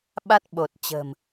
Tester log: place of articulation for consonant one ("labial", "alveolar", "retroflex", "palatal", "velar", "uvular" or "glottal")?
labial